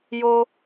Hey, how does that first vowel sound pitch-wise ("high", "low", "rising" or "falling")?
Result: low